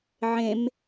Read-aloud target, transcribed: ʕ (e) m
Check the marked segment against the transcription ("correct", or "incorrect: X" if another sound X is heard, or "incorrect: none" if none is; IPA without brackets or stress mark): incorrect: ẽ